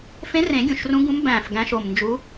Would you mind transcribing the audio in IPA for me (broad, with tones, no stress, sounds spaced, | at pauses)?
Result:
f ẽ˧˥ r ẽ˨˩˦ ɡʲ ũ˨˩ ʃ r ũ˧˥ ɡ ũ˧˥ m b æ̃ː˨˩ f ɡ æ̃˧˥ ʃ o˨˩ m n d͡ʒ u˧˥